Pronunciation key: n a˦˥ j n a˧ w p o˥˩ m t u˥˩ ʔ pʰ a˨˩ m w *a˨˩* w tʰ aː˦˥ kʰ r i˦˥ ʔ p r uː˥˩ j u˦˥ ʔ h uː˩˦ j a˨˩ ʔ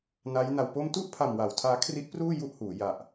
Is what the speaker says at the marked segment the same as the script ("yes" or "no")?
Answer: no